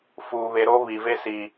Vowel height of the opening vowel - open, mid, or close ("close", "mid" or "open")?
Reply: close